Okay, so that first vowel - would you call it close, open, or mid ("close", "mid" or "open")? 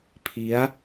close